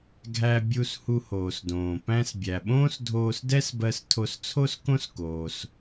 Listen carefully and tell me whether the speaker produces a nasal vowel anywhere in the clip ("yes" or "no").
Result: yes